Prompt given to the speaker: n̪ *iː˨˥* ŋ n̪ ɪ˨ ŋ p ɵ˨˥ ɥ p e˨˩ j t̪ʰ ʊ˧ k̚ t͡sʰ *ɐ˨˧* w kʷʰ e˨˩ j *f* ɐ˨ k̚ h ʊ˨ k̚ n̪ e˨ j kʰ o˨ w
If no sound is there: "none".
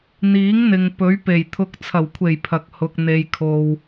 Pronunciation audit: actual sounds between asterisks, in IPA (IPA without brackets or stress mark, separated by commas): iː˨˥, ɐ˨˩, pʰ